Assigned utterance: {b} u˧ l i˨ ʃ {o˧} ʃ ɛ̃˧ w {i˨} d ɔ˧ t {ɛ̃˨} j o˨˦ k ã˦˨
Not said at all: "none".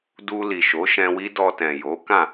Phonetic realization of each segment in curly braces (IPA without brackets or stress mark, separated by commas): d, o˨˦, i˦, ɛ̃˨